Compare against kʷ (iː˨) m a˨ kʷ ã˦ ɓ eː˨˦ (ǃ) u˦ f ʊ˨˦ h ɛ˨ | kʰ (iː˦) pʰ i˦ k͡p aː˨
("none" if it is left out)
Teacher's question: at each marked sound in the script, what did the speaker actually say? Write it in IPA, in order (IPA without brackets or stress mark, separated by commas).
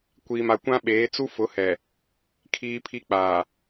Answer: iː˨, t͡s, iː˦